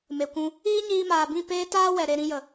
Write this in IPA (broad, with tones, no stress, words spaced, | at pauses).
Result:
me˨kʷũ˧ | iː˦ɲiː˧maː˨bĩ˦˨ peː˦taː˦ wɛ˨ɾe˧ɾĩ˧jə˨